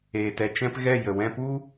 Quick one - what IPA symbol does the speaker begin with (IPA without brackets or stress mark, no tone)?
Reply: eː